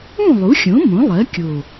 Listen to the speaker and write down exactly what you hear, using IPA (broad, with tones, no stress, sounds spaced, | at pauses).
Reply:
ũ˥˨ lˠ u˩˥ xʲ õ˩˥ m õ˩˥ lˠ ɜ˩˥ kʲ o˨˩